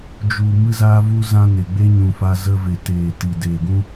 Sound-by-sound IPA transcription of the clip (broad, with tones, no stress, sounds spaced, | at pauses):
d͡ʒ u˨ m ɨ˧ z aː˧ v u˧ z ã˧ n e˨ ɡ͡b e˦ ɲ ũ˨ f a˧ z ə˧ v e˨ t eː˨ t i˨ d eː˨ ɡ ũ˦